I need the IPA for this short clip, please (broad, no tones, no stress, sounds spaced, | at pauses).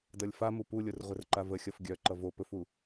d ʌ lʲ f a m u p u lʲ o r ʁʷ ə r ǃ a v ə xʲ ʌ f ɡʲ œ ǃ ʌ v o p ɵ f u